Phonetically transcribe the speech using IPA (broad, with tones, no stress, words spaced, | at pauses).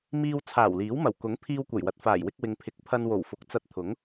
miː˧w t͡sʰaː˨˩wliː˨˥w mɐ˨˩wkʊ˨˥ŋ pʰiː˧wkʷɐ˨˩jwɐ˨t̚ faː˨˩jwɪ˧k̚ wɪ˨ŋpʰɪ˨˥k̚ pʰɐ˧nwo˨˩wfʊ˨˥k̚t͡sɐ˧t̚ t̪ʰʊ˨˥ŋ